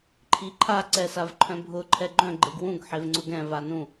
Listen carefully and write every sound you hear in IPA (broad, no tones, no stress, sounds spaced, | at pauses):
ǃʰ i ǃʰ a ǀ ɛ s a v ǃʰ œ̃ bʱ ʊ ǃʰ ɛ ɡ͡ǃ œ̃ ɡ͡ǃ e ɡ w ũ ɡ ħ e v ŋ͡ǀ ʊ ɡ ɛ̃ v a n ũ